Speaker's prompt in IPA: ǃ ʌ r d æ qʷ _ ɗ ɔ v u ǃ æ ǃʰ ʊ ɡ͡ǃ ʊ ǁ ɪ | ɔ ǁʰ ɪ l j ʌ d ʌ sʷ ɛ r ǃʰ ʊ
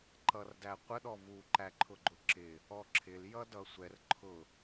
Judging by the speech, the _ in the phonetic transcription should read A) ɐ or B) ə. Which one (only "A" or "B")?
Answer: B